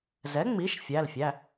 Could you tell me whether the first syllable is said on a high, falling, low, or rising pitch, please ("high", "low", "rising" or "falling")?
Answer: rising